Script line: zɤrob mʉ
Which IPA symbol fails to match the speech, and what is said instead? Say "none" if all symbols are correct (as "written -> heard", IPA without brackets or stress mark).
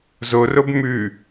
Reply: ɤ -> o